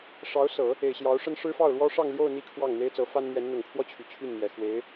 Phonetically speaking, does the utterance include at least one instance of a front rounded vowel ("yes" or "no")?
yes